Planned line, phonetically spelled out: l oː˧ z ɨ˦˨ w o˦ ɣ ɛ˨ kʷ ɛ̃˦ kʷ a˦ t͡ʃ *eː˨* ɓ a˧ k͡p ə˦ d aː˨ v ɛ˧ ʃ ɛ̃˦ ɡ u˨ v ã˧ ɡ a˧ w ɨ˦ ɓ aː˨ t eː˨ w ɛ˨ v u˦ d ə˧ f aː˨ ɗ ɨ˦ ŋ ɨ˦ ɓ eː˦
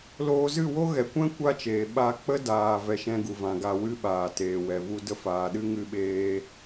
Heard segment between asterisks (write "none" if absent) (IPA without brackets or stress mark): eː˨